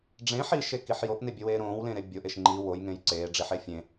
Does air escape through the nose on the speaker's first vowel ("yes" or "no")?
yes